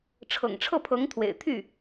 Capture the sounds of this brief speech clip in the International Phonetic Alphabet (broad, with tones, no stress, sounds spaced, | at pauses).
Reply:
ʈ͡ʂʰ ɤ̰˨˩ ŋ ʈ͡ʂʰ ɤ˥˩ pʰ ɤ˧˥ ŋ t̪ʰ w ḛ˨˩ ɪ̯ t̪ʰ y˥˩